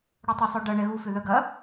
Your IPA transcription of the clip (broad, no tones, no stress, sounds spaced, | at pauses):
ɽ o tˤ ɪ sˤ œ ɖ ɐ ɳ ɛ ɣ u f ʏ ð œ ɡ ɐ